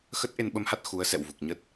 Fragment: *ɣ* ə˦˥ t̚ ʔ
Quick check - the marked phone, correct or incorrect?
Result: incorrect